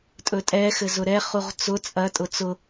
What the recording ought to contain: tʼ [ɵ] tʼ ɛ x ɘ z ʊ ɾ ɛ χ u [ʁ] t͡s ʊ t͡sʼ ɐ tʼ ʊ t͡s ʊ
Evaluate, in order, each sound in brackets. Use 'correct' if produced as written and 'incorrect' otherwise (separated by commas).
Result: correct, correct